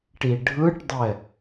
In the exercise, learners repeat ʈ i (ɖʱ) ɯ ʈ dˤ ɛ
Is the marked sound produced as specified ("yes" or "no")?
yes